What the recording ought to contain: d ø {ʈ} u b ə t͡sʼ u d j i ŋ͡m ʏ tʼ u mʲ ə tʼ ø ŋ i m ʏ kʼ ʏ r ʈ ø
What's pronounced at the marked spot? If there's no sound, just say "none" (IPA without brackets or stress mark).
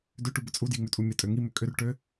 ʈ